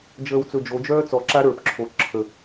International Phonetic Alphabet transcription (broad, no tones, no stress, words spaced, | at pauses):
d͡ʒəːwt͡sɵd͡ʒo d͡ʒœːt͡sɔ ǁaɾə˞p ǁʰo ǁʰə